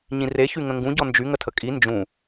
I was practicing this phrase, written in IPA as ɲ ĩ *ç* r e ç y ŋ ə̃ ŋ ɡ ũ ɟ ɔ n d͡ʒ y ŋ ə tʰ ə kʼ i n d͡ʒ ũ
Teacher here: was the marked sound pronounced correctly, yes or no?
no